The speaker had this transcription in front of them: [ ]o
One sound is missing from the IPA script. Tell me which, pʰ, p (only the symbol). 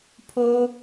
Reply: pʰ